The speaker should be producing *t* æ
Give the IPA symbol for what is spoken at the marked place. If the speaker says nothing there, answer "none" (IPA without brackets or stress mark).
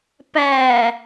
p